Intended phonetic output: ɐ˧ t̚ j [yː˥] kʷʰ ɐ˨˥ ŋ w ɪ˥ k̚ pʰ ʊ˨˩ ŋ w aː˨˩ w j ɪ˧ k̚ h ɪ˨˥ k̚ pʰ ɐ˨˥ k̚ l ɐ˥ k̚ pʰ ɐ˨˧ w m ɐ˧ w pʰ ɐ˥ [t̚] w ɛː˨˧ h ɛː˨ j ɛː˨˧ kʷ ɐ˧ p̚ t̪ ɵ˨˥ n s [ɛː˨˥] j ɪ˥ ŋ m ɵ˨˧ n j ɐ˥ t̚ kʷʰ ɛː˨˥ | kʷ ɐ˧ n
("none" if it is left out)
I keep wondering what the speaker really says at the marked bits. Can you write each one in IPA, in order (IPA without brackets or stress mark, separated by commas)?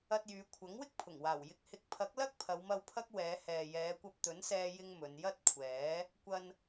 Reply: yː˨˧, k̚, ɛː˥